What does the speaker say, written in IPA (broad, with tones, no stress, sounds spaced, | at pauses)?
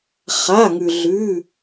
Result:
χ a˩˧˩ ŋ ʉ˩ ɮ ʉ˩˧˩